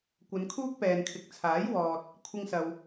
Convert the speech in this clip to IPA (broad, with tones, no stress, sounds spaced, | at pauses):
kʷ ɐ˨˧ n kʰ uː˥ k̚ p ɛː˨ n kʰ ɪ˨˥ k̚ t͡sʰ aː˨˥ j w ɔː˨ t̚ | kʷʰ ɪ˧ ŋ s ɐ˨ w